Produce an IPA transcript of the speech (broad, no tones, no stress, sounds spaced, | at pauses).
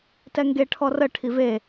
t ɛ ŋ ɡ e ʈʰ ɔ r ə ʈʰ i v e